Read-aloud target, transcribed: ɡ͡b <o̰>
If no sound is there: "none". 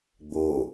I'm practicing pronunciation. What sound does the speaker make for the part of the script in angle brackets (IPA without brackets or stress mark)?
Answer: o